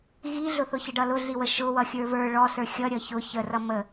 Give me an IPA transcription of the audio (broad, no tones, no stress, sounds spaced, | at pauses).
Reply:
ɣ i ɮ ʊ θ ʊ ç ə ɖ ʌ l ʊ ɮ i w ə ʃ ʊ w ʌ xʲ ə˞ v ə˞ ɭ ɔ s ə˞ xʲ ʌ ɾʲ ʌ ç ʊ ç ə r ʌ m ə